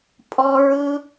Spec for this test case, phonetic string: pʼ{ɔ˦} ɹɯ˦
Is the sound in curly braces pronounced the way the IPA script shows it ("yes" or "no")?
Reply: yes